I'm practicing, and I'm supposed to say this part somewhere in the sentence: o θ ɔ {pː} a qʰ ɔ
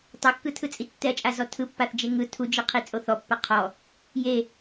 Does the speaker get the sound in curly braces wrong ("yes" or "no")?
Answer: no